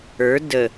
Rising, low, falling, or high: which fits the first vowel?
rising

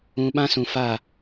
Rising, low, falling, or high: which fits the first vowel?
low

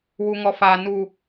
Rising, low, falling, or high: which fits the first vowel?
low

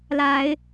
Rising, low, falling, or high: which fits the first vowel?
rising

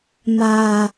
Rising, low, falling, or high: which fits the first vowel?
low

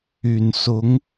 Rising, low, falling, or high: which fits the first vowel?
low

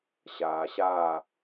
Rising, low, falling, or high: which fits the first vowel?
low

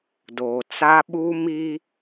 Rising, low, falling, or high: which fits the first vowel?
low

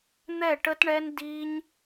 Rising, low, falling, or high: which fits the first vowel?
falling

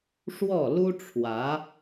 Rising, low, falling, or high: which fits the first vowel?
falling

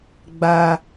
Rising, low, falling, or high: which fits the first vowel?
high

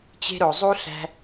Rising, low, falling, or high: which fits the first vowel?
high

